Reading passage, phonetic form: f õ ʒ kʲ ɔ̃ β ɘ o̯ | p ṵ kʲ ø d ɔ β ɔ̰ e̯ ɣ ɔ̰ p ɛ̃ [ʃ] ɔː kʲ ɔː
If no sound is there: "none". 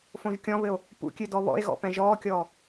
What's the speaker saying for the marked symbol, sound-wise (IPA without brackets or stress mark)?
ʒ